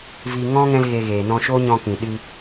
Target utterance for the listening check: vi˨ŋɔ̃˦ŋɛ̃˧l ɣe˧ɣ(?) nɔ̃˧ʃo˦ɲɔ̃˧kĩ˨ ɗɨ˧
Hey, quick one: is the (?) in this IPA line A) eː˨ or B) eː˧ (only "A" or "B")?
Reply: A